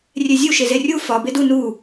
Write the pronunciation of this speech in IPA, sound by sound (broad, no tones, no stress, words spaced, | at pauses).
rʲezʲu ʃezerʲu fɒ bedu nu